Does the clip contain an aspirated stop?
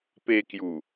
no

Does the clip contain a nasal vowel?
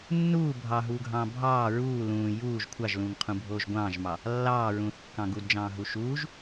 yes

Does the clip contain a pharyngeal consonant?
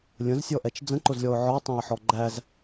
yes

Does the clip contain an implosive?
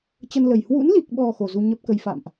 yes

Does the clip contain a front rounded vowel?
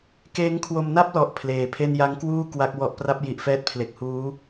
no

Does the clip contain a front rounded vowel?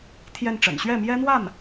no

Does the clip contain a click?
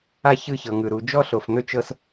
no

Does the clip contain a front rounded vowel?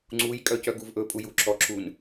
yes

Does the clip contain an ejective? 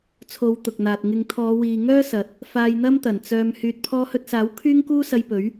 no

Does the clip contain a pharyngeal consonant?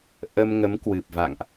no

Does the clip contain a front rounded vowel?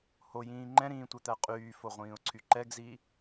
yes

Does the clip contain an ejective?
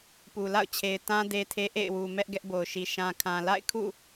no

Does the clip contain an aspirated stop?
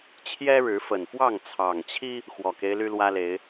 yes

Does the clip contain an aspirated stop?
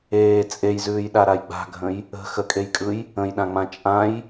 no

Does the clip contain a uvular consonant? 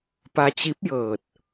no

